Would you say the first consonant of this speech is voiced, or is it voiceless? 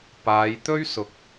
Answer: voiceless